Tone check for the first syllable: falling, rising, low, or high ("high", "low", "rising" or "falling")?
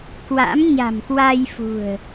rising